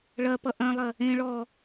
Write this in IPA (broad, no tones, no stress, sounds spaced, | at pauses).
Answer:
ɭ ɐ p ʌ ʔ ɐ̃ lˠ ɐ | ẽ ɭ ɔ